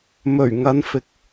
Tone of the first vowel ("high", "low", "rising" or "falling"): low